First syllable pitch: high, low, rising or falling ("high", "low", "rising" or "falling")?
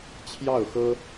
falling